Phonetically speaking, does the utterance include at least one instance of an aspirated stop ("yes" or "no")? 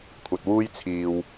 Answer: yes